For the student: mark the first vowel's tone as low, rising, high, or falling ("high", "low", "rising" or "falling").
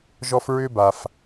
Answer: high